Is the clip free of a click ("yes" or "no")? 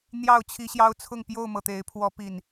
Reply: yes